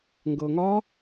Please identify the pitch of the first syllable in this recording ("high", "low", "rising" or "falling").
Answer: low